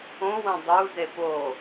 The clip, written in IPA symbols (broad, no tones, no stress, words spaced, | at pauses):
õwɐ̃ dˤuzep o